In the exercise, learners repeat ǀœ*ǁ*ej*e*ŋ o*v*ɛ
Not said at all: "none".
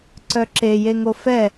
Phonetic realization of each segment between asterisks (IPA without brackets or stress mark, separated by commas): ǁ, e, f